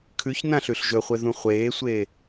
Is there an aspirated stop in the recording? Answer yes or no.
yes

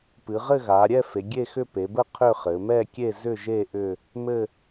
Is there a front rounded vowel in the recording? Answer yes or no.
yes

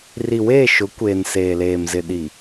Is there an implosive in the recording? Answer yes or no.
yes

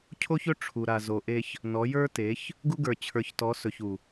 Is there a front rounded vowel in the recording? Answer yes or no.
no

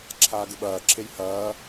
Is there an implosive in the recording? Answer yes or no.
yes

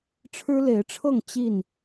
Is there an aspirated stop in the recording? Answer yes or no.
yes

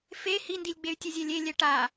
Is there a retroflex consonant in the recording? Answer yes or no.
yes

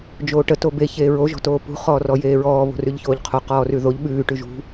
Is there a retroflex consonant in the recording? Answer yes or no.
yes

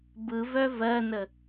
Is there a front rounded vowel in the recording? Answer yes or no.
yes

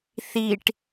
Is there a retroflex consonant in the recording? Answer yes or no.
yes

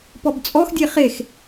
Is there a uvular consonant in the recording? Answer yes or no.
yes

